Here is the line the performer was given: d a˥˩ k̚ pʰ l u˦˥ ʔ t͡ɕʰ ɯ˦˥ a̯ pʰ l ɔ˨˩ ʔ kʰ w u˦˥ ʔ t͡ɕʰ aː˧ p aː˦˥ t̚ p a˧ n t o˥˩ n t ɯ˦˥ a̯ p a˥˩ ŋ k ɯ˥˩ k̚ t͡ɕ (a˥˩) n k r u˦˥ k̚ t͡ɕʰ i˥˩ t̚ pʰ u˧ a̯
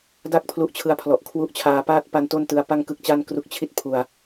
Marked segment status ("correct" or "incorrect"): correct